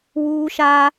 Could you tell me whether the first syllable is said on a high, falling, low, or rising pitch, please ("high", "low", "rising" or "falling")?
high